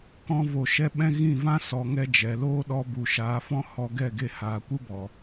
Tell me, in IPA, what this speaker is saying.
k ɔ̃˦ v o˧ ʃ ɛ˦ ɓ ɛ̃˦ ɣ ĩ˦˨ v ã˦ s ɔ˨ ŋ ɛ˧ d͡ʒ ɛ˨ l oː˦ ɗ ɔ˧ b u˨ ʃ aː˨˦ f ɔ̃˦ h ɔ˧ ɡ ɛ˦˨ ɡ e˧ h aː˨ kʷ ɨ˦ b ɔ˨

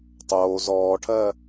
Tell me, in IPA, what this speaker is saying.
tˤ oː z ɔː ʈʰ ɜ

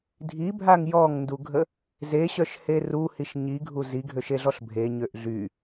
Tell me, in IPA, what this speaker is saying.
dʱ i bʱ a ŋ j ɔ ŋ n d u ɡʱ ə | z e ɕ œ ʃ h e r u h i ʃ ɲ i ɡʱ u z i ɡʱ ø ʃ e ɮ ɔ ɬ bʱ e ɲ ø ʔ ɮ y

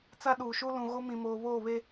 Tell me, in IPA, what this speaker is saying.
t͡s a˦ ɗ uː˨ ʃ u˦ l ũ˨ ɣ o˦ m ĩ˨ m oː˨ β oː˦˨ β e˦

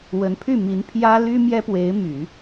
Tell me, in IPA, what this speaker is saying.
w ə˧˥ n pʰ y˥˩ m i˧˥ n pʰ j ä˥ l y˥ m j ɛ˥ p w e˧˥ ɪ̯ m y˨˩˦

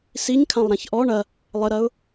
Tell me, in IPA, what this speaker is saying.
s i ɲ kʰ ã lˠ ɾ ã ç ʔ ɔ ɳ ɐ | lˠ ɘ ɾ ɐ ʊ̯

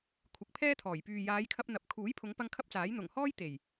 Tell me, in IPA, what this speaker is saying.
kʷʰ ɪ˨˥ k̚ pʰ ɛː˥ t̪ʰ ɔː˨˩ j p yː˨ j aː˨˧ j kʰ ɐ˧ p̚ n̪ ɐ˧ p̚ kʰ uː˨˥ j pʰ ʊ˨˧ ŋ p ɐ˧ ŋ kʰ ɐ˥ p̚ t͡s aː˨˥ j n̪ ʊ˨˩ ŋ h ɔː˥ j t̪ e˨˩ j

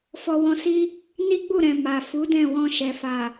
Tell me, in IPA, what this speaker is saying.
f ɔ˧ w ɔ̃˧ s i˦ | n i˦ ɡ͡b u˦˨ ɾ ɛ̃˨ m a˨ f u˨˦ d ɛ̃˦˨ w ɔ̃˧ ʃ ɛ˨ f a˨

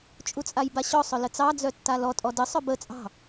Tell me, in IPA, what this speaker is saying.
t͡ʃʼ u t͡sʼ a j b a ɕ ɔ sˤ œ l ə t͡s ɑ d͡z œ tː a l ɔ tʼ ɔ d ə sˤ œ b ə t͡sʼ ɑ̤

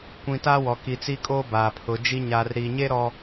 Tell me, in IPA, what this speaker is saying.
kʷ ĩ˨ t aː˦ w ɔ˨ k i˨ t͡s i˦ kʼ oː˦ b aː˨ pʰ ʊ˨˦ d͡ʒ i˦ ɲ aː˨ r ɾ iː˨ ɲ eː˦ ɾ ɔ˨

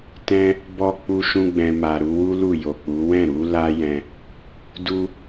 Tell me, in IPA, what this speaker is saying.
t ɛ̃˦ | b ɔ˧ k͡p u˦ ʃ ũ˦ ɡ͡b ɛ̃˧ m a˨ ɾ u˧ w u˦ l u˦˨ j o˨ k͡p u˨˦ w ɛ̃˦˨ ɾ u˨˦ l a˦ j ɛ̃˧ | d u˦

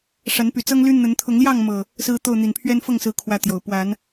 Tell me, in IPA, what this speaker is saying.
ʂ a˨˦ n p y˨˩ t͡s ɤ˦ ŋ l y˦ n̪ ə˨˦ n t̪ʰ ʊ˨˦ ŋ l j ɑ˥˨ ŋ m ɤ˨˩ | s ɹ̩˦ t̪ o˥˨ ʊ̯ n̪ i˨˩ n pʰ ɥ ɛ˦ n f ɤ˥˨ ŋ s ɹ̩˨˦ kʰ w ä˦ t̪ j o˨˩ ʊ̯ p w a˨˦ n

